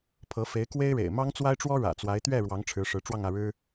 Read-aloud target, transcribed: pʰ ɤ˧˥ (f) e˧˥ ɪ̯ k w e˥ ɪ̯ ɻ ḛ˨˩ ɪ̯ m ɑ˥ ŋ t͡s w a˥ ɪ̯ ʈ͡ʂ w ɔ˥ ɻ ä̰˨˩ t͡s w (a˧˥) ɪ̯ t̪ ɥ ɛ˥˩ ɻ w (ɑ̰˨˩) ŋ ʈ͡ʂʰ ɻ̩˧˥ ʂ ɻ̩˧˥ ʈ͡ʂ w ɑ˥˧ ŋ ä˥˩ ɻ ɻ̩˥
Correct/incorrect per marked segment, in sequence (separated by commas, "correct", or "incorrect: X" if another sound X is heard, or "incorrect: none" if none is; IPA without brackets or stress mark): correct, correct, incorrect: ɑ˧˥